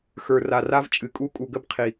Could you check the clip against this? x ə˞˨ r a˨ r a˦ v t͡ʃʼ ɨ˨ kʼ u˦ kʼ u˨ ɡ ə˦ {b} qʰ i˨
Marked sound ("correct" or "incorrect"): correct